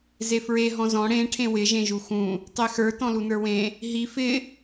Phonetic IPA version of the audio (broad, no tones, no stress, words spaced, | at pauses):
zefɹe ɦɔ̃zɔ̃ ɽẽ ʈʰẽwɪ ʒẽʒuxũ | tˤexə˞ tɔ̃lunə˞wẽ | ɦi fɪ